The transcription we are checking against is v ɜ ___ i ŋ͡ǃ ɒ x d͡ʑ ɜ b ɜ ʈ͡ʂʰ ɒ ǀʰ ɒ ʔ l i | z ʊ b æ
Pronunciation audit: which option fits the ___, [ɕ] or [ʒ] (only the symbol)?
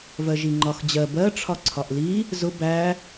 ʒ